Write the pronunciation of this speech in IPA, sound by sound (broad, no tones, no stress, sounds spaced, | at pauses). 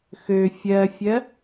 x ø fʲ ɜ fʲ ɜ